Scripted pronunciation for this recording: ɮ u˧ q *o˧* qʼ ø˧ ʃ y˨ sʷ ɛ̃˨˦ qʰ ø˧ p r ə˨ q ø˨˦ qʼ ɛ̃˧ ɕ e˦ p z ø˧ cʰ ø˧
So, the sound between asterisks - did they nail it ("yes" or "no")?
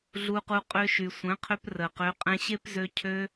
no